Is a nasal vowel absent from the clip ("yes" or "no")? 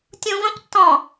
no